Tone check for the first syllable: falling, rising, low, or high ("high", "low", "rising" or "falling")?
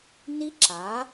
high